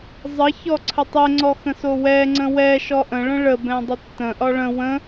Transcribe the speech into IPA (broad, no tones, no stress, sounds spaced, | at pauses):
zˤ ə ç ɔ ǀʰ ə tˤ ɛ ŋ͡ǀ ɔ x ə̃ s o w ɛ ŋ͡ǀ ə̃ w ɛ ʃ ɔ ʔ ə̃ ɭ ə̃ ɭ ə b ɛ̃ dˤ ə tː ə̃ ʔ ɒ ɭ ə̃ w ə̃